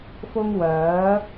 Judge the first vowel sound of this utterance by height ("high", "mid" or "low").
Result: high